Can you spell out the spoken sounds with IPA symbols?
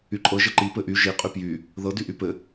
y ǃʼ ɤ ʒ ə ǃ i p ɘ ʔ y ʒ i qʼ y p j y | ð ɤ d y ʔ y p ɘ

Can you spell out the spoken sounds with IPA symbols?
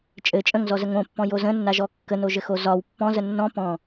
t͡ʃʼ ɘ t͡ʃʼ ə̃ ŋ z ɔ z ə ŋ õ pː ɔ̃ j o z ə̃ nː a ʒ ɔ kː ə n o ʒ ɘ x o z ɒ w pː ɔ̃ z ə nː ɔ̃ p ɔ̃

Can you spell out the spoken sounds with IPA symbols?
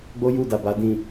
ɡ͡b o˦ j u˦˨ d a˨ b a˨ d ĩ˨

